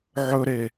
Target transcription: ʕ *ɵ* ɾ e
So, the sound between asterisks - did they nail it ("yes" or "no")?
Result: yes